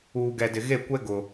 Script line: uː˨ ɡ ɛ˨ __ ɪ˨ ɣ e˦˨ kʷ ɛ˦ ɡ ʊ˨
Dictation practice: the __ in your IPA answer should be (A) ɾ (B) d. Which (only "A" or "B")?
B